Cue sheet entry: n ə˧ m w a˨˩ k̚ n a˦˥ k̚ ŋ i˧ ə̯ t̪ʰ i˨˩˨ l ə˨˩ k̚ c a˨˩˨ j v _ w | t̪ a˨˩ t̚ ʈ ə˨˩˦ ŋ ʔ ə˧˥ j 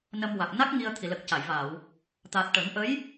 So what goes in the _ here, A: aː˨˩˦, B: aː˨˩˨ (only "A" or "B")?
B